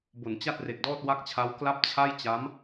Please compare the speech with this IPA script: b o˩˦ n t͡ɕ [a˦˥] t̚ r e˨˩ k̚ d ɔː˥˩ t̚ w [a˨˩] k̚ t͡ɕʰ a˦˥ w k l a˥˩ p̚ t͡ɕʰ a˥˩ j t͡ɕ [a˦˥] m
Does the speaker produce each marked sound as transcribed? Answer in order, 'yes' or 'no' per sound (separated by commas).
no, no, yes